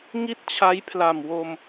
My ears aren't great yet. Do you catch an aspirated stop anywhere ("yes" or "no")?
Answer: yes